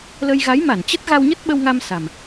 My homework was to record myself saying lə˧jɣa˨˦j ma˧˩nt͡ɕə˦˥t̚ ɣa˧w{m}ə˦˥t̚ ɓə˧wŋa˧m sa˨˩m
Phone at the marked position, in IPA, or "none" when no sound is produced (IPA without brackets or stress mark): ɲ